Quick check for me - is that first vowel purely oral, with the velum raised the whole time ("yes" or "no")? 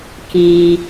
yes